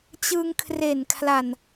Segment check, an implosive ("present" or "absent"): absent